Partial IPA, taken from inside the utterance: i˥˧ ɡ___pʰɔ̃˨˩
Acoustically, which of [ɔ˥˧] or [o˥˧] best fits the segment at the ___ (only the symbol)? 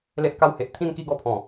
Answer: ɔ˥˧